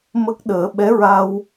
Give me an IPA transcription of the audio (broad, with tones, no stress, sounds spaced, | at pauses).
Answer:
m ə˦˥ k̚ ɗ əː˨˩˦ ɓ ɛ˧˥ ɹ a˧ w